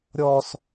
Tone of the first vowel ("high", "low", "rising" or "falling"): high